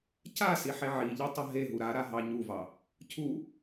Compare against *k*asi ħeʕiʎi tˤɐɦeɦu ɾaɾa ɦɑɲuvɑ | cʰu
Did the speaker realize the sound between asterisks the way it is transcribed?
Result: no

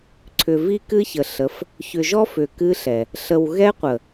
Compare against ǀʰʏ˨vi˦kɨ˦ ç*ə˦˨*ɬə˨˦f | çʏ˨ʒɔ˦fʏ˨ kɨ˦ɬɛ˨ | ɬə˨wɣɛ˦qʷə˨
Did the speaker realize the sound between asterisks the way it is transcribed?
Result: no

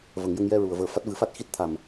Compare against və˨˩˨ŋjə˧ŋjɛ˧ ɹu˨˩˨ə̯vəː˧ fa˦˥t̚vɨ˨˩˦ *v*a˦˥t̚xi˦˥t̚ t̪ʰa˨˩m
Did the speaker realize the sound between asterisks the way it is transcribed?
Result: no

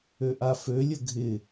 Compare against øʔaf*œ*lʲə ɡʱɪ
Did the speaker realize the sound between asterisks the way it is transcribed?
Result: no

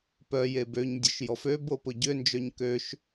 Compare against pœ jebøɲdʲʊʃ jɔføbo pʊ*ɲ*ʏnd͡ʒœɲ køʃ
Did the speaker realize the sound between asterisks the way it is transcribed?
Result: no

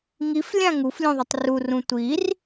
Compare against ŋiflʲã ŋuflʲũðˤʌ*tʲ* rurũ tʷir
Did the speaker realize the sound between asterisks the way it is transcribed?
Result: no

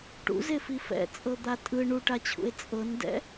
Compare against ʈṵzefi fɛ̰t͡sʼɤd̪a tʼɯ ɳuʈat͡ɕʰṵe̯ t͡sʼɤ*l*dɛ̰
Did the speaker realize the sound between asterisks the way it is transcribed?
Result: no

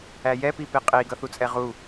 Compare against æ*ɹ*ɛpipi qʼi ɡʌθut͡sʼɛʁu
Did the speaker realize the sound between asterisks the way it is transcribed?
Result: no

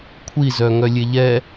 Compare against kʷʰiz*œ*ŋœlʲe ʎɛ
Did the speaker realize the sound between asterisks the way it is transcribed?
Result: yes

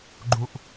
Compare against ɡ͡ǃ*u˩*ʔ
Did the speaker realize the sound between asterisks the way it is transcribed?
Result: no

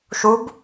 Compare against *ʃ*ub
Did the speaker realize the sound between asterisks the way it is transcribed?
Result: yes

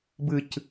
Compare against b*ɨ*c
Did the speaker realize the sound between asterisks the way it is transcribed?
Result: yes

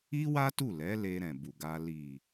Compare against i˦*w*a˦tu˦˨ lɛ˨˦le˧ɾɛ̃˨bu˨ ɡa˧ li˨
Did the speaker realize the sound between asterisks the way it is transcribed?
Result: yes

